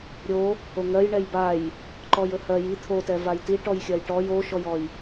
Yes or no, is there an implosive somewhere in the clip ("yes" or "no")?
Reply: no